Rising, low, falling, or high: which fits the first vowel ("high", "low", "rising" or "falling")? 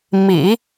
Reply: low